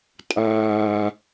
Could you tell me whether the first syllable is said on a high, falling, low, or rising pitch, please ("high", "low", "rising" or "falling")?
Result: low